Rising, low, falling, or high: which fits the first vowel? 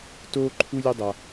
high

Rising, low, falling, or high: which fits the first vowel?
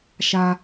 high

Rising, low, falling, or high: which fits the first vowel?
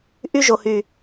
high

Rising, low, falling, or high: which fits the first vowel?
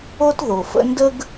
high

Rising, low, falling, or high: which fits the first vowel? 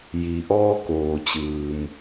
low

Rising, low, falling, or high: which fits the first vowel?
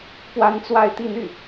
high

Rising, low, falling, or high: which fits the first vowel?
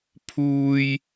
high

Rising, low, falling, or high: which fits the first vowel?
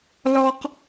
low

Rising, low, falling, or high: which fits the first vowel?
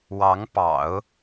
rising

